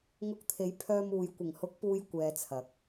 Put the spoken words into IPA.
ŋ ʊ˧ k̚ t̪ʰ e˨˥ j pʰ œː˧ m uː˨ j kʷ ɪ˨˩ ŋ h ʊ˨˥ k̚ p uː˨ j kʷ ɛː˨ t͡sʰ ɐ˨˥ k̚

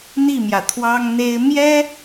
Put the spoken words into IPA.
n̪ i˥˩ m j ä˩ t̪ʰ w ɑ˥ ŋ n̪ e˥ ɪ̯ m j ɛ˥

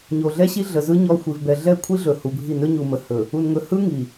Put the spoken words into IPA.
ɲ o˨ ɮ ɛ˦ ɕ i˦ ɮ ə˨ z ɯ˦ ɲ ɔ˦ xʷ i˨ v b ɛ˨ ɮ ɛ˦˨ kʷʰ i˦ ɮ ɵ˨ h u˨ bʱ i˦˨ n ɵ˦ ɲ u˨ m ə˨ h ɵ˨ | u˨ n ŋ ɵ˨ h ɯ˦ ŋ i˨

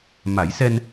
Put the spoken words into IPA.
m a˨˩˦ j s ɛ˧ n

